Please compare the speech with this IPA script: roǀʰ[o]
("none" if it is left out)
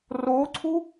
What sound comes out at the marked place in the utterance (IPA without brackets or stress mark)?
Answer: u